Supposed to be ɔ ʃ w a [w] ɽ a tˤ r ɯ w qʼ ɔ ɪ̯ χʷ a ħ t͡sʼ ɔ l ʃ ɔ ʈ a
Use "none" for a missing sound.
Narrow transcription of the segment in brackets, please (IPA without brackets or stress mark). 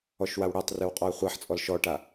w